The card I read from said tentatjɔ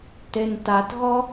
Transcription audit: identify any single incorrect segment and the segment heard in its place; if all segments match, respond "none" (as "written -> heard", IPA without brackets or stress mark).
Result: j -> ɣ